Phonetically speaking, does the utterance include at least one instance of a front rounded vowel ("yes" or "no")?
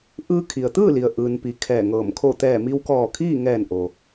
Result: no